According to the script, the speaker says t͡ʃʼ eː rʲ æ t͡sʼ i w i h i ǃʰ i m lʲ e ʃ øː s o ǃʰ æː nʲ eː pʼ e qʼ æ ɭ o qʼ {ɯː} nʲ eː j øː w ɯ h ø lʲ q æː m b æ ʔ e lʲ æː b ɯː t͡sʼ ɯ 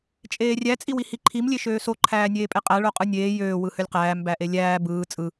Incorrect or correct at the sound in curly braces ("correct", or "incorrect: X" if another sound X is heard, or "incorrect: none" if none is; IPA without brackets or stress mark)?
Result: incorrect: ɯ